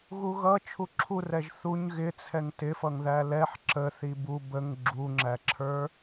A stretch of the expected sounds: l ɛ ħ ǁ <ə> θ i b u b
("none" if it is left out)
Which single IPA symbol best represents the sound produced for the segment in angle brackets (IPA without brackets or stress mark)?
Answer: ə